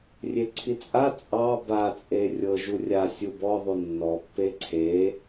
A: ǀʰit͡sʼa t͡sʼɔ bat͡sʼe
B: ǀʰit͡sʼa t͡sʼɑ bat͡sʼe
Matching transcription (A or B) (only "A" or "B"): B